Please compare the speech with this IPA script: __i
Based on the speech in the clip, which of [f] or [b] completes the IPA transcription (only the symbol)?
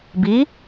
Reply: b